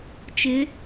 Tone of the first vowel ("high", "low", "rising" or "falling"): rising